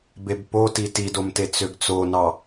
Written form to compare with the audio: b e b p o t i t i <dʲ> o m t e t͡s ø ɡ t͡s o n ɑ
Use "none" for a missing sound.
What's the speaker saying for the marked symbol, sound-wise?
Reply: d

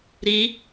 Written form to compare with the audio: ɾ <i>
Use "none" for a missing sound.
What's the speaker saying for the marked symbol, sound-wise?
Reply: i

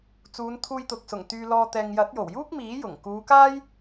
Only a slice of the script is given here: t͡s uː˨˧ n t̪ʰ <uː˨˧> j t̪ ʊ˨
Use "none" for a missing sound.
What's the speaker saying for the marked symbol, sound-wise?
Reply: uː˧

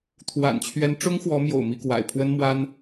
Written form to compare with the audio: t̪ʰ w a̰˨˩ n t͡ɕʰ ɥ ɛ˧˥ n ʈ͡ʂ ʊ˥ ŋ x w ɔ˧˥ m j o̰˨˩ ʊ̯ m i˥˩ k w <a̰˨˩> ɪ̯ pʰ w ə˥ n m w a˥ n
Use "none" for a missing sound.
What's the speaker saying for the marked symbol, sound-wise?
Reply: a̰˨˩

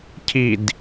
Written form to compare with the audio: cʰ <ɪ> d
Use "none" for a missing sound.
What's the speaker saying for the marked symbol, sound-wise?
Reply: i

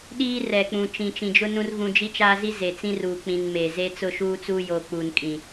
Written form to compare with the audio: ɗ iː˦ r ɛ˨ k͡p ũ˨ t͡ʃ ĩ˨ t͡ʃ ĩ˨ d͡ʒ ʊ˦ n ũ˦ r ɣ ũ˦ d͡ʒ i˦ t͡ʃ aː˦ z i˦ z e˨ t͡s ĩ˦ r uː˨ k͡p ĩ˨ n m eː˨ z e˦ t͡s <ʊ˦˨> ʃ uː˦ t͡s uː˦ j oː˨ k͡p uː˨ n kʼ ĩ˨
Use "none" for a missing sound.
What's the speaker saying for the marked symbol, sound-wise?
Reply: ʊ˦˨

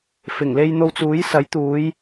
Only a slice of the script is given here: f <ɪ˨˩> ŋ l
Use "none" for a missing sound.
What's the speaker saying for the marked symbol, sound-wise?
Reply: ɪ˨˩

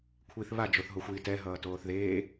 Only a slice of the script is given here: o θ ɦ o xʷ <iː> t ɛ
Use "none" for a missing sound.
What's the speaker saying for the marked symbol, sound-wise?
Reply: iː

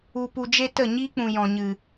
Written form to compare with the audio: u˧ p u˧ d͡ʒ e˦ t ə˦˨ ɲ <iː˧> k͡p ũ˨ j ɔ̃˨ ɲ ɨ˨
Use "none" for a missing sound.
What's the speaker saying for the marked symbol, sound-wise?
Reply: iː˦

